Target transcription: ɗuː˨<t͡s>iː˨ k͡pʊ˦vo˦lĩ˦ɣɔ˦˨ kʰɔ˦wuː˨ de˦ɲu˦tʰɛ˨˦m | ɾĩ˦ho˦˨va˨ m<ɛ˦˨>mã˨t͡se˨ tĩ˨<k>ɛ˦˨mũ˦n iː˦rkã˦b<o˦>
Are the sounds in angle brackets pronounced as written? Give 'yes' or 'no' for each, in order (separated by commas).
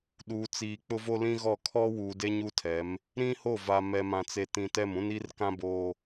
yes, no, no, no